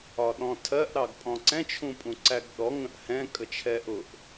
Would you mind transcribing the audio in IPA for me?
ɒ ɗ ɔ̃ tʰ ɜ ʔ ɾ ɑ ɡ pʼ ɔ̃ ǀ ɛ̃ t͡ʃʰ ũ pʼ ũ ǀ æ ɡ ɗ ɔ ŋ ə̃ ʔ h ɛ̃ kʼ ə t͡ʃʰ ɛ ʔ ʊ ʔ

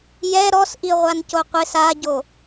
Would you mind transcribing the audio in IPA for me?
j ɛ ɾ ɔ s ʔ i ʁʷ a n c o qʷ ɪ s a ɟ o

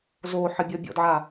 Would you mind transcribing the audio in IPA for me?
z o ħ ə bʲ ɔ bʲ ɔ̰ d ʕ a

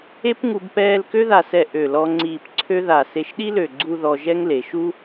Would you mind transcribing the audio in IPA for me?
e˥ p ŋ u˧ b p ɛː˥˧ l k ø˥ ð a˧˩ s ɛ˧˩ ʔ ø˧˩ l ɔ˧ ŋ͡ǀ iː˧˩ p ǀʰ ø˥ ð a˧˩ s e˧˩ ʃ ɗ i˥ l ø˧˩ ɡ͡ǀ u˥˧ ð ɔ˧ ʒ ɛ˥ ŋ l e˩˧ ʃ u˥

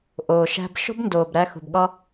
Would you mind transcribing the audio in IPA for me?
ʔ oː˨ ʃ æ̤˧ b ʃ o̤˦ b n d oː˨ b ɾ æ˧ x ṳ˨ b ɠ ɒ˦

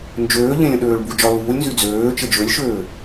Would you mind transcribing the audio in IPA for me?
n d͡ʒ øː ʎ ẽ lʲ ə̃ ɗ øː ɭ b u d͡ʒ ɒ l uː lʲ n z y d͡z øː t͡ʃ ə d͡ʒ ø lʲ ʃ øː

